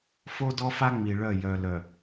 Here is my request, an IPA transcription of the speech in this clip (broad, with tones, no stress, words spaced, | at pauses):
fo˦dɔ˦fa˦ ŋ͡mi˨ɭœ˦˨ jœ˨lœ˨